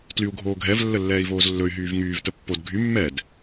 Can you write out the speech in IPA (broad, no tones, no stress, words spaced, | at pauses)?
tlyu̯ɡʱoːɡʱɛv lːəlːɛːi̯voːzlːɵy̯ ɦyːvŋyːv təpːod ɡʱy mːɛd